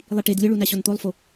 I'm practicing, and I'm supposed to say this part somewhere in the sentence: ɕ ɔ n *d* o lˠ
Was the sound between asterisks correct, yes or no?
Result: no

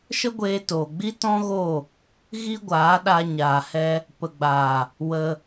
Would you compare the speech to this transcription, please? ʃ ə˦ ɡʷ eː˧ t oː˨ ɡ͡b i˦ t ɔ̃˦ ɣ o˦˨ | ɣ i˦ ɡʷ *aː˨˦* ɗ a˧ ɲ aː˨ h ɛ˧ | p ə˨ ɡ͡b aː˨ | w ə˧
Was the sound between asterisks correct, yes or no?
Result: yes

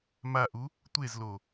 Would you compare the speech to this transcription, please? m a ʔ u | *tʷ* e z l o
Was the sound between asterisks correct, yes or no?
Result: yes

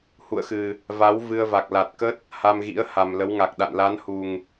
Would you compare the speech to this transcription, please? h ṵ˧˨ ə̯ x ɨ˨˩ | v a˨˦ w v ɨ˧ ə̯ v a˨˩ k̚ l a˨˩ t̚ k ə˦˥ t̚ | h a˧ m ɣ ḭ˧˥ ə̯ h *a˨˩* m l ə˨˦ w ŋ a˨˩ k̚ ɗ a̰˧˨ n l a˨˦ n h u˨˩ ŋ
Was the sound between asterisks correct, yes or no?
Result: yes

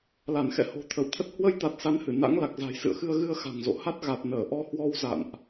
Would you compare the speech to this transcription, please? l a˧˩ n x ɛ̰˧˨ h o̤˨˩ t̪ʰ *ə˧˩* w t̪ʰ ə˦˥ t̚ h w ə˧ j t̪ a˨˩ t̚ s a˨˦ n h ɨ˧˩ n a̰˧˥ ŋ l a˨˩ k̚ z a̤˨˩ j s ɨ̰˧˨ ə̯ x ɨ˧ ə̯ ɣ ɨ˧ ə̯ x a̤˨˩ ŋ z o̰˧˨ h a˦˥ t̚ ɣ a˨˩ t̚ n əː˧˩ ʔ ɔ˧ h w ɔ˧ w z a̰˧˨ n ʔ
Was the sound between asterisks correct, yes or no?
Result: yes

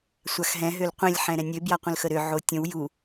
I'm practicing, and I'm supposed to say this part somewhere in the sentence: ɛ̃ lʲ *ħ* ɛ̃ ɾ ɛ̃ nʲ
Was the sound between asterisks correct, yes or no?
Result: yes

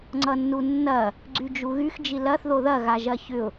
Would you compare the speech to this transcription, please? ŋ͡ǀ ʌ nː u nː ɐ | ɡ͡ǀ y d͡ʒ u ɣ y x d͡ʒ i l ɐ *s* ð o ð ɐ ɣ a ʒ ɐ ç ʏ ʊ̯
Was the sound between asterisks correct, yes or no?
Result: no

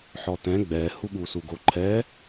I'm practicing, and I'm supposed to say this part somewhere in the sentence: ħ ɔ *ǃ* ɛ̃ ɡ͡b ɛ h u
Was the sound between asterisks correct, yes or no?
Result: no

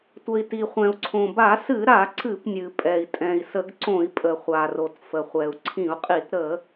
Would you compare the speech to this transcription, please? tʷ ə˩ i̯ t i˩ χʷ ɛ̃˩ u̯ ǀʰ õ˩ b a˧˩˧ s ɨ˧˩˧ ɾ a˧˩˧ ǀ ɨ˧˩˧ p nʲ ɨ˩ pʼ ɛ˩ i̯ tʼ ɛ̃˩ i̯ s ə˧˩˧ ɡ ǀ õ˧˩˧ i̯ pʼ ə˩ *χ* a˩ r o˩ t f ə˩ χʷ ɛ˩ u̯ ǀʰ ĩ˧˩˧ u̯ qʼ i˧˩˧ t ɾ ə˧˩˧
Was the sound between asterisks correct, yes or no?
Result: no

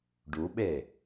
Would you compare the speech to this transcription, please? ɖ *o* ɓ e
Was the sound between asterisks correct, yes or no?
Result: no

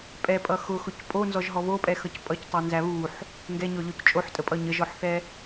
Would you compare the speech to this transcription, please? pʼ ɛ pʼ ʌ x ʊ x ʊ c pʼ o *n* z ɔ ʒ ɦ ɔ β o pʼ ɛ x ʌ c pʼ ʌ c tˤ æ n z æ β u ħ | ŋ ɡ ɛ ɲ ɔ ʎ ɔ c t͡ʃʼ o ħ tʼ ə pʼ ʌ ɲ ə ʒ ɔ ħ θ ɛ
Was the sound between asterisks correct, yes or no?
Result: yes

